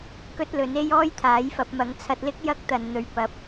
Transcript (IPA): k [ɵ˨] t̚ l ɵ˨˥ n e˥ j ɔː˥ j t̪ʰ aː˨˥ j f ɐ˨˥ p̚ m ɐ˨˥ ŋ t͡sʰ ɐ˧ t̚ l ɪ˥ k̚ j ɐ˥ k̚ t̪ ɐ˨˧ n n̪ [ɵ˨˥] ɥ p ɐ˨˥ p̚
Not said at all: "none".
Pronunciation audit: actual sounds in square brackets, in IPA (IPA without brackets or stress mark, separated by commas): ɵ˥, ɵ˧